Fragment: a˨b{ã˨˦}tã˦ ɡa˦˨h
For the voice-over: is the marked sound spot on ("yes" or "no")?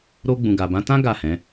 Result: yes